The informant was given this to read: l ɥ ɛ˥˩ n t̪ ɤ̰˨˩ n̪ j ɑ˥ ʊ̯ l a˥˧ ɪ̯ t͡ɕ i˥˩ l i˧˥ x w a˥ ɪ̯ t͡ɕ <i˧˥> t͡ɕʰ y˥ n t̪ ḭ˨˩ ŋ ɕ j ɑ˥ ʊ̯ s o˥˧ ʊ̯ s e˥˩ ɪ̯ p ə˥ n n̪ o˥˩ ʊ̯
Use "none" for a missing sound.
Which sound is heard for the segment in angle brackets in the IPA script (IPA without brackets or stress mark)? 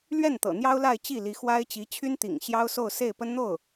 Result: i˧˥